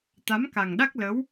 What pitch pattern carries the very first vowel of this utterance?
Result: rising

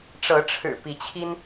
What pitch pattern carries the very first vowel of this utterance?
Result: rising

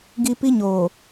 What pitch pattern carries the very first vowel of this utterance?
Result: high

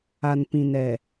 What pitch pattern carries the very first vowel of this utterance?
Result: low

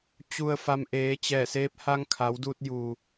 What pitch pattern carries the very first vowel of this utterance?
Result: low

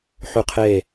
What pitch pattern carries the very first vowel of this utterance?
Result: falling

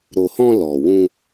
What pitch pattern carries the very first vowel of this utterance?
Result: low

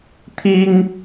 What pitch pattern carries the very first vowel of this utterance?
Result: high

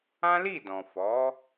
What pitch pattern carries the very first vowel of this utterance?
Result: high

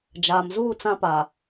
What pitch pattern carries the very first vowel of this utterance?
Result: low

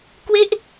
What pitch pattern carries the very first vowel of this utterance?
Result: falling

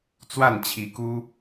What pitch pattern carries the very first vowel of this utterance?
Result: falling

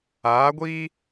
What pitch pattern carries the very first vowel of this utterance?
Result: rising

